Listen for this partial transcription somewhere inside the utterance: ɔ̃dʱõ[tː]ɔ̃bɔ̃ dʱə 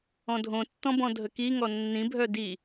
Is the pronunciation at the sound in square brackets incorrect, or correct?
correct